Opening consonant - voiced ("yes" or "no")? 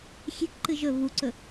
no